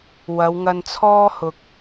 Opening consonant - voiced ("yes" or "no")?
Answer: yes